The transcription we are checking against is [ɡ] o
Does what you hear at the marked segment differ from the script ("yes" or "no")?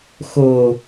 yes